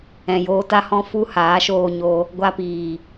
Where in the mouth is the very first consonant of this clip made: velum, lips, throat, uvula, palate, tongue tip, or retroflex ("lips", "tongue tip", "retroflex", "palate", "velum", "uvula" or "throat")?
palate